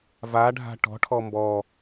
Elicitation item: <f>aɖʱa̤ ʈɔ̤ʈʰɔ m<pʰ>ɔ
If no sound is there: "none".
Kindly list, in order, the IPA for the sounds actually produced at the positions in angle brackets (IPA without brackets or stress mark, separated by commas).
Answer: v, b